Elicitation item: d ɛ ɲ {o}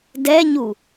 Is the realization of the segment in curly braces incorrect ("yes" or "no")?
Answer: yes